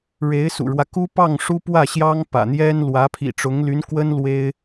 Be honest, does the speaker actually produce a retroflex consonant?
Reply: yes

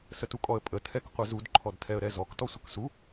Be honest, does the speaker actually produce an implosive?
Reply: no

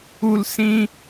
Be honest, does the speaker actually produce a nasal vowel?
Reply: yes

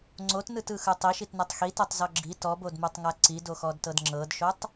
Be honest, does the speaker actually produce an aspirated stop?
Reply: no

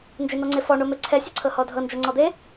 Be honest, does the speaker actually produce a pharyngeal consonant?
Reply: no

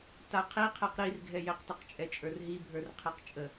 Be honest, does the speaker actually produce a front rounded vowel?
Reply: no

